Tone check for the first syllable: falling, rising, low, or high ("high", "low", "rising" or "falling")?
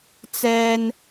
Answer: high